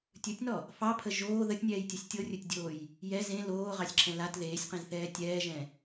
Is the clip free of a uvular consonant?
no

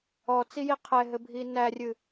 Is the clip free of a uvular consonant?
no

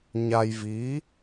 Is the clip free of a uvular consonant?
yes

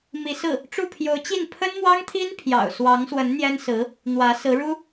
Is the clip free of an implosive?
yes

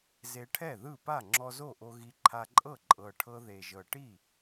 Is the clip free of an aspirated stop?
no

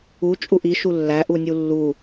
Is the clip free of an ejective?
no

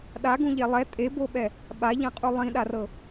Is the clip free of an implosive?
no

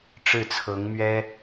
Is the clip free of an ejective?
yes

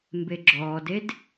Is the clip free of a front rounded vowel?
yes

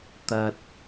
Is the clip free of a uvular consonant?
yes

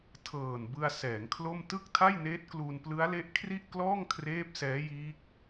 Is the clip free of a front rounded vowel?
yes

